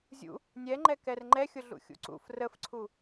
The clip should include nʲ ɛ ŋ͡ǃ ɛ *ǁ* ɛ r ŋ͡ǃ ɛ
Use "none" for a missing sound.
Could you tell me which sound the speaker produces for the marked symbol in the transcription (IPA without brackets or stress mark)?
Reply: k